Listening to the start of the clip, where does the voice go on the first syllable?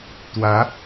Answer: rising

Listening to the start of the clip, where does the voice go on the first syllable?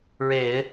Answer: low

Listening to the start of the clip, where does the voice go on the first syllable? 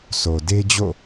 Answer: low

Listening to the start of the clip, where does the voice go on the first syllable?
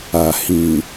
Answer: low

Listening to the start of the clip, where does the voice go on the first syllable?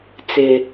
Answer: low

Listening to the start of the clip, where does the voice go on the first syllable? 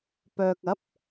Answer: low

